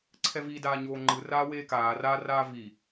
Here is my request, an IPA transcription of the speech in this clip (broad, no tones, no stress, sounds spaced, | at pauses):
ǀʰ ɛ v i d aː ɲ oː ŋ͡ǃ ɯ r aː w eː k aː r a r aː v i